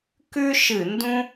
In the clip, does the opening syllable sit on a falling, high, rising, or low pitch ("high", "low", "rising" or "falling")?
high